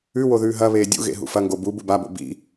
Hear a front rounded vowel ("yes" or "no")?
no